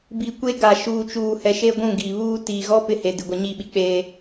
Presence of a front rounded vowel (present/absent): absent